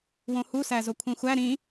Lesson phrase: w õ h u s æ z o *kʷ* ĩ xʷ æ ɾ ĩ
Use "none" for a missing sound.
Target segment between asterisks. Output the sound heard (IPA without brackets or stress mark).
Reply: kʷʰ